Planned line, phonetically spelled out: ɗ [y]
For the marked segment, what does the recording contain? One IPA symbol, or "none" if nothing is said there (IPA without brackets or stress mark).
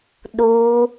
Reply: u